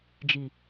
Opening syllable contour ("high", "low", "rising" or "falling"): low